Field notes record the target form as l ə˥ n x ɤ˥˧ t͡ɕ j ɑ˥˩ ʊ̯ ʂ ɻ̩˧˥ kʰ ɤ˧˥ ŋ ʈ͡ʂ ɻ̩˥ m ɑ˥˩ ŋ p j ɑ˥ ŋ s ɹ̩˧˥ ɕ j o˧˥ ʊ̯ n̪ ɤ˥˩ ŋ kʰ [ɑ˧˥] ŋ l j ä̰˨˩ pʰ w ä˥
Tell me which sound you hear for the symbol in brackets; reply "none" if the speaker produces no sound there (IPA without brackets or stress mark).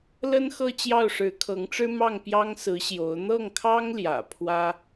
ɑ˥